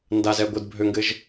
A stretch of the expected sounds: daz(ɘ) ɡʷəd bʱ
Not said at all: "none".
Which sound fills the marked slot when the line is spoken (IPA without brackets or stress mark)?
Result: ɛ